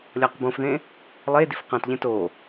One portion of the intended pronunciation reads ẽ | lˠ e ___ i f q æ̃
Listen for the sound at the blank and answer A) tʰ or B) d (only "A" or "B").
B